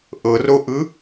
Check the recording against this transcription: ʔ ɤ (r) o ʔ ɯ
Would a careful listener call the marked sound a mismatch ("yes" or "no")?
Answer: no